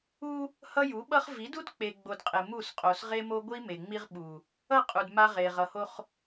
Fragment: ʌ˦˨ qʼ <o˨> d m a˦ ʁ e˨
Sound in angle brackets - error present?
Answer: yes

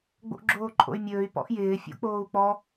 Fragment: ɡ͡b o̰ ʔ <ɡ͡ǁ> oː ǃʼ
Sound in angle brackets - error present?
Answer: no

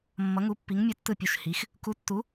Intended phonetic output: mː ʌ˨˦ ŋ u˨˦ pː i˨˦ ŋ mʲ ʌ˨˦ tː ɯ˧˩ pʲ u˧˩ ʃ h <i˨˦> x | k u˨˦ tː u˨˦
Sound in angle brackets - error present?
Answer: no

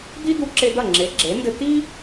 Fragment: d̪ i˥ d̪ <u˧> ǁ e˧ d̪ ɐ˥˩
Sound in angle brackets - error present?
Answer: no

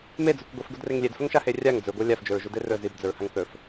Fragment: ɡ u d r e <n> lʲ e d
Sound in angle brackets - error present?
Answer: yes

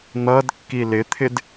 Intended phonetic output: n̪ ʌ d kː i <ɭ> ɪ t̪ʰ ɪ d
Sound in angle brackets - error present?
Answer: yes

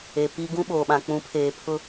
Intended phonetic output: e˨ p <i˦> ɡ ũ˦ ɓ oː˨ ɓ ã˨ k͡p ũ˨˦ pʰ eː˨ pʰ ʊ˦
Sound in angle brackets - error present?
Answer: no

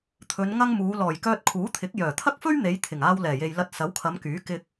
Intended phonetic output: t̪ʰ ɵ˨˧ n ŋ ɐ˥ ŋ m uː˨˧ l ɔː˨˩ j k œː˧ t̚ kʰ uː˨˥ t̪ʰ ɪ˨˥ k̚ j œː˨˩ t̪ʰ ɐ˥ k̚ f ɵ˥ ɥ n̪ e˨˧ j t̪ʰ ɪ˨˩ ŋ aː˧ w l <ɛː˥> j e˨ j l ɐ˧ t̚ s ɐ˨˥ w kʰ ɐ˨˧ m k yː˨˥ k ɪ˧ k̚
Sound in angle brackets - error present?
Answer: yes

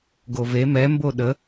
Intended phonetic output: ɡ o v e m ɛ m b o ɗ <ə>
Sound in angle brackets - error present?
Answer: no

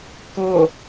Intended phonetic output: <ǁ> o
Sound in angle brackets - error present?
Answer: yes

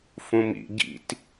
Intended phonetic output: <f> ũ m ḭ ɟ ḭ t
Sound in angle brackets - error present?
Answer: no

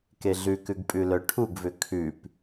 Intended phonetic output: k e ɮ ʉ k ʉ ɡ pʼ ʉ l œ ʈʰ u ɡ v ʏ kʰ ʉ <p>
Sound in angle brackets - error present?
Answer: no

